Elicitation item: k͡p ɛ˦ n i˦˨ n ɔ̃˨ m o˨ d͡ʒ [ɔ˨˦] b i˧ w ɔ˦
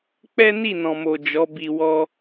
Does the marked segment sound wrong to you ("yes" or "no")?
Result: no